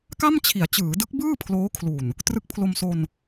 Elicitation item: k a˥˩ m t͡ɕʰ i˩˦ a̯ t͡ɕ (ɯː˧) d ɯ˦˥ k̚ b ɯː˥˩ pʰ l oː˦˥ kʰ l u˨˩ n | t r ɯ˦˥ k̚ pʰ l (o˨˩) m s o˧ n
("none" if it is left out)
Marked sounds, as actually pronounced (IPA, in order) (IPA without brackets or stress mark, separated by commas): ɯː˩˦, o˧